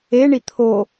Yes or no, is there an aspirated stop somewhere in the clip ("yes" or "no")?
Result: yes